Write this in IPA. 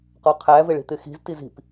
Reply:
qɒqʰæ vɪɭi̤t̪ɪxi̤z tizi̤p

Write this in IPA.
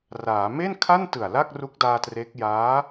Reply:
raː˩˦ me˥˩nkʰa˥˩ntɯ˨˩a̯ la˥˩k̚ru˦˥k̚daː˧tre˦˥k̚ jaː˦˥

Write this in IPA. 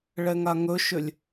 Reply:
ɭɛŋaŋɵʃʏlʲ

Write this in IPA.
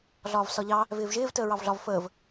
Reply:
ɮɒːvsɒʎɑ | vɪːvʒɪːv təːɹɑvɮɒv fəːv

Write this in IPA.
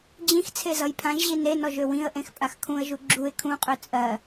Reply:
d͡ʑĩx t͡sʰezʌjpʰãʒʑi nenɔʒ øwĩə̯ʔẽx pʼaxkʰũə̯ʒu ɡ͡ǁuɪ̯ kʰũqʼø t͡sʼɜ

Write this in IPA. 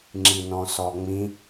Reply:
ŋ͡ǁinɔ̃sɔŋ͡mĩ

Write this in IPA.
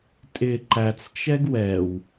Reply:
tʼɪ ǃæt͡st͡ʃɛɡ wɛw

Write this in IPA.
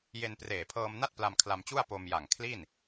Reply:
je˧n preː˨˩pʰɤː˧mna˥˩t̚ pla˧mkʰla˧mt͡ɕu˥˩a̯ po˧mja˨˩ŋ kʰli˥˩n

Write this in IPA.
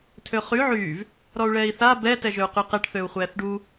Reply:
tʰøχy ʕyːv | ɾɔu̯ɭɛːi̯θa bɛ tɛʒøu̯qyqɛʈ θøu̯χʷɛːθɖu

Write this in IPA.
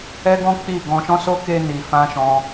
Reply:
ɛ˦ɡɔ̃˦ k͡pi˦˨ ɡɔ̃˧ʃɔ̃˦so˦ ke˧ni˨fã˧ ʃɔ̃˦

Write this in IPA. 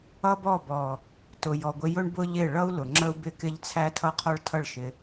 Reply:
ʌ˦bɔ˦˨bɔ˨ | tʊ˨jɔ˨ɡʷɪ˧jʊ˦ɳ bʊ˦ʎɪ˦˨ ɭʌ˦u̯lʊ˨ ŋ͡ǁə˦u̯bɪ˦˨kɪ˦ʎ t͡sʰæ˦tʰʌ˦qʰɔ˦ɭtʰʌ˦˨ɭ ʃɪ˧

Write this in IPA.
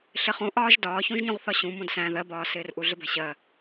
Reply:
ɬɪχũʔɒːʒ dɒːçũʒɲũʁθɒ ɕũ mũdsæ̃ ðɜbɒːsɪːrʔu ɮɪbæ̤ɕɜ

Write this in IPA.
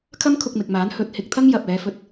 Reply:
kʰɐ˥mkʰʊ˧k̚mɪ˨k̚maː˨˥n hɵ˨t̚hɪ˧k̚ t̪ʰɐ˥ŋjɐ˨p̚ɛː˨˧fɵ˧t̚

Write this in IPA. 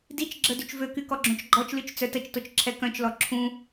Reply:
dit͡ʃɡ͡ǁə dyt͡ʃvøky kɔɡ͡ǁõt͡ʃɡ͡ǃɔt͡ʃlyt͡ʃ t͡sœtət͡ʃtot͡ʃ ǁʰɛkœ̃t͡ʃlɔ ǁʰũ

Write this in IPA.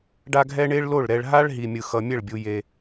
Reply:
ɖa˥ɡʱɛ˥ ɳe˥ɭlo˥˨ɭ ɾɛ˧ɭɦa˥ɭ ɦi˧mʲɯ˧xʌ˧ mʲɛ˥˨ɭbʲu˧ je˧

